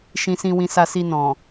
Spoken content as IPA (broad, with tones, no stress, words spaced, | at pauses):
ʃĩ˧sĩ˧wĩ˧sa˧ si˧nɔ̃˨